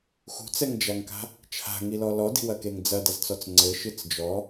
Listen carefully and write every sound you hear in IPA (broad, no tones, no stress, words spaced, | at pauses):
xṳt͡sɛŋd͡ʒaŋka̤ | t͡ʃʰa̤ŋilɔ lɔdi̤wɐkeŋ d͡zɐdɐzt͡sɔt͡s ŋ͡ǀɘʃɨt͡s d͡ʒɔ